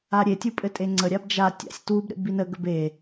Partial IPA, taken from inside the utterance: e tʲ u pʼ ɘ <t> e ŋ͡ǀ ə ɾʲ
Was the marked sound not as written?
yes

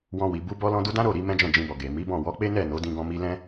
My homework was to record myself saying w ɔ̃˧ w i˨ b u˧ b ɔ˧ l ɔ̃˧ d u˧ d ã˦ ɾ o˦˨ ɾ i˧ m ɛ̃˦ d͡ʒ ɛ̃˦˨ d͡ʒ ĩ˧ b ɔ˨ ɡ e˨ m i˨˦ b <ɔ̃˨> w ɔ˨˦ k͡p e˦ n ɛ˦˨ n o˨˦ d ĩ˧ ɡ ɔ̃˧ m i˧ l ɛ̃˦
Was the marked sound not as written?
yes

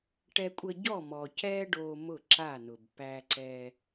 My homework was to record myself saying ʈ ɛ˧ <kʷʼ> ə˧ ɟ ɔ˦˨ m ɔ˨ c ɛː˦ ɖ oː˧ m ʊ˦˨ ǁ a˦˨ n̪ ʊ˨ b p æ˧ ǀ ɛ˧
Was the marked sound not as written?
no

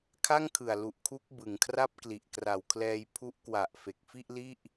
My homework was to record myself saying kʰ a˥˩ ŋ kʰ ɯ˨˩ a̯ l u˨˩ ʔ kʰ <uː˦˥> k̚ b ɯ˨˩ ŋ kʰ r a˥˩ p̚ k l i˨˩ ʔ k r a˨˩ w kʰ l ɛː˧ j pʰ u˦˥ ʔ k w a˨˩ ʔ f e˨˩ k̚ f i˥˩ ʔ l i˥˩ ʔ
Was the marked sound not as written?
yes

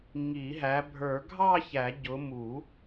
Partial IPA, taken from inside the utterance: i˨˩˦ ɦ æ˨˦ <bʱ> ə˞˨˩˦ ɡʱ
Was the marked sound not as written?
no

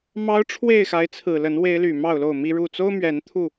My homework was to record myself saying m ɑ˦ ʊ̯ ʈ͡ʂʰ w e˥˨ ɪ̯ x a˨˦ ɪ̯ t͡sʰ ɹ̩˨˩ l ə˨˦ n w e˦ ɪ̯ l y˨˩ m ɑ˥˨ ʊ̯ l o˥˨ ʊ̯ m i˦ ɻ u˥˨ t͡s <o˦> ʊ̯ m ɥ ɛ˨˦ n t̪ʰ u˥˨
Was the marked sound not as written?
no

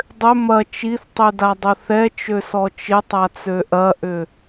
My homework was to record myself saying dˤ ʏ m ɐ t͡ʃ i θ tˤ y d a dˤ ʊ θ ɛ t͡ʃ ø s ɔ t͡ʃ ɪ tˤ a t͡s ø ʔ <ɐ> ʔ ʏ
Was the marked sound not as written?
no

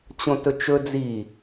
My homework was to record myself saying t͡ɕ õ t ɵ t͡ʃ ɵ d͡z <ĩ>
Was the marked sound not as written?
yes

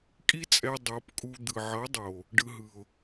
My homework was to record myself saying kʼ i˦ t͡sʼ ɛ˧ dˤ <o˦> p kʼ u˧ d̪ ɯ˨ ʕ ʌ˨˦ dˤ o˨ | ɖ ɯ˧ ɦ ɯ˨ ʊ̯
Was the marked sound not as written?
yes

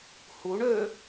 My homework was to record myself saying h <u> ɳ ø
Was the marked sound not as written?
no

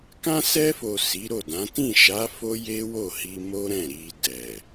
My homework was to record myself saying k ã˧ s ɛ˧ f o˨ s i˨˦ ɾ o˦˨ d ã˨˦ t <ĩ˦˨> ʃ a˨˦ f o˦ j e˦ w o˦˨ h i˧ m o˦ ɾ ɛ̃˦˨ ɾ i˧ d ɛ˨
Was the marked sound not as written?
no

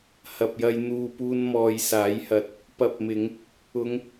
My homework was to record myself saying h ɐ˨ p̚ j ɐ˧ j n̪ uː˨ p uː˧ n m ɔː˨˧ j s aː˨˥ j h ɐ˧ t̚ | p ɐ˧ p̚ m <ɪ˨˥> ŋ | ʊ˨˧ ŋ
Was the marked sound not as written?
yes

